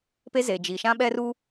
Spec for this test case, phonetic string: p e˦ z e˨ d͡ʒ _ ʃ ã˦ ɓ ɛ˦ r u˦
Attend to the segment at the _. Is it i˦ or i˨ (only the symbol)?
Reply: i˨